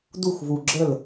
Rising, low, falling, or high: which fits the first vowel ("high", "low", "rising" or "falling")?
falling